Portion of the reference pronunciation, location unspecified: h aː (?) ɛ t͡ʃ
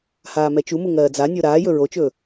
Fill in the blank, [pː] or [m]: m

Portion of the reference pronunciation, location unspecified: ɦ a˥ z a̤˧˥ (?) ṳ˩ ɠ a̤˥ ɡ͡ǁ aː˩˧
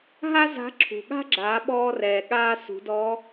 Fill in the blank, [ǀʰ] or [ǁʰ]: ǁʰ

